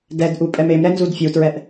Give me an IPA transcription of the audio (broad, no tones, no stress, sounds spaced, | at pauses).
d ɛ d ʔ u pʼ ɛ m e m ɾ ɛ n z u d fʲ u t ɹ ɛ ʔ